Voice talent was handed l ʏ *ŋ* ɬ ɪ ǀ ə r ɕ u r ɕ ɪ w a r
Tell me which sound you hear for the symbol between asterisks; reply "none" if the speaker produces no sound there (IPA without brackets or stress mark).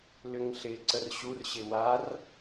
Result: ŋ